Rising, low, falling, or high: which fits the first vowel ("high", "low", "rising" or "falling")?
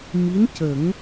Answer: rising